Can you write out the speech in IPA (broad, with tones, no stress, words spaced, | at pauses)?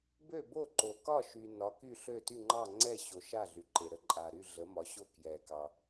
bø˥˨bo˥˨ ǃo˨kɒ˥˨ ʃy˨ nɒ˨˥ky˥˨ɬø˥˨ ty˥˨ŋ͡ǃɑ˥˨ŋ͡ǀɛ˥˨ɕo˨ ʃa˥˨ɮy˨ǃe˨ ɾə˥˨ǃʼa˨ɾy˥˨ ɮə˨˥mɒ˨˥ɕo˥˨ kjɛ˨kɑ˨